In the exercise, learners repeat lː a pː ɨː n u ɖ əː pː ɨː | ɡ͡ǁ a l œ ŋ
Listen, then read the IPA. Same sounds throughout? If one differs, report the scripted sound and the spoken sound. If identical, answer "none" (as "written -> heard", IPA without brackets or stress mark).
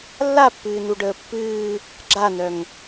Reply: l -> n